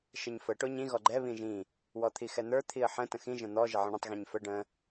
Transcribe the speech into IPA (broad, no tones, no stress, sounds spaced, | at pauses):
ʃ ə ɲ f ə ʈ o ɲ ĩ ɣ ɔ ɡ͡ǃ ɛ β ĩ ʒ ĩ | w ɔ t̪ʰ i x ɛ n̪ ə˞ t̪ʰ i ə̯ ħ ə̃ t ə̃ x ĩ ʒ ə̃ n̪ ɔ ʒ ə ʕ ə̃ ɳ ə̃ tˤ ɣ ĩ ɲ f ə ɖ ə̃